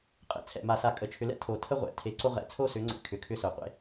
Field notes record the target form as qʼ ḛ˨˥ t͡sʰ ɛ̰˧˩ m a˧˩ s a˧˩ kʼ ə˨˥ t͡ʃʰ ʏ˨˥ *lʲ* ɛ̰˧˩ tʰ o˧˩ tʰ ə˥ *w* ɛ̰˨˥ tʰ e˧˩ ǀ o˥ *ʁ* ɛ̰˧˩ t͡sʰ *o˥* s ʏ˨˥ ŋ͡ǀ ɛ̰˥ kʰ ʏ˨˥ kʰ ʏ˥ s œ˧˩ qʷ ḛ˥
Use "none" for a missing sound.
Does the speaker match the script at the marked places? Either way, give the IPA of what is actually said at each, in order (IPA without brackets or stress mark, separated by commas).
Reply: l, ʁʷ, ʁ, o˥